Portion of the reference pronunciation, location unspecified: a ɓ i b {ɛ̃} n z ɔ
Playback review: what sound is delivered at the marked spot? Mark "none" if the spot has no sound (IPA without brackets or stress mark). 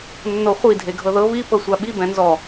ɛ̃